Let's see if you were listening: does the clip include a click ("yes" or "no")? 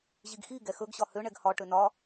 no